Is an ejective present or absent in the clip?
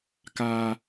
absent